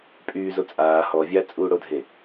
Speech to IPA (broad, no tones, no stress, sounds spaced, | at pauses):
pʼ yː z o t͡sʼ aː h ɔ vʲ a t͡sʼ uː ɽ o dʱ e